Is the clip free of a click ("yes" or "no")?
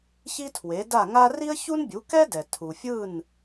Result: yes